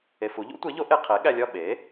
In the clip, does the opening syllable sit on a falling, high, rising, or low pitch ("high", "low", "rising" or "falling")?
low